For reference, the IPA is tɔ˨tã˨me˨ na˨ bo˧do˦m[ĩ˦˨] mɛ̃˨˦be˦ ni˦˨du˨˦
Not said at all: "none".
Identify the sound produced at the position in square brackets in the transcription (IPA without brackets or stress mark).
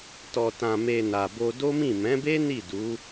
ĩ˦˨